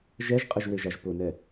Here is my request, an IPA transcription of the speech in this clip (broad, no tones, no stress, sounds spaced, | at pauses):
ʒ ɛ ʒ qʼ ə ʒ w e ʒ a ʒ p ʊ n ɛ